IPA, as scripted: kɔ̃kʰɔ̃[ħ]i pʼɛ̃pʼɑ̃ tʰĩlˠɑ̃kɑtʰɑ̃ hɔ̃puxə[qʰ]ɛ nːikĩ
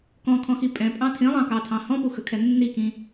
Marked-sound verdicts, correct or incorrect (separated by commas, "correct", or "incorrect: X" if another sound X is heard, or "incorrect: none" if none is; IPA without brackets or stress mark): incorrect: x, incorrect: kʰ